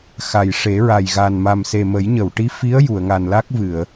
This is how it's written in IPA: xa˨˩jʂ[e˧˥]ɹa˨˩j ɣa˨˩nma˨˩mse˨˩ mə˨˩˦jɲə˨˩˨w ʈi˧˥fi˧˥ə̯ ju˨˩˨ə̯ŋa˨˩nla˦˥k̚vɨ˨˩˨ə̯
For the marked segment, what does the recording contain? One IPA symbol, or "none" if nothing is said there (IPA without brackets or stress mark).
e˨˩˦